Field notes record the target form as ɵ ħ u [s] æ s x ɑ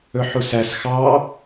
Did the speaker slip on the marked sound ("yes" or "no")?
no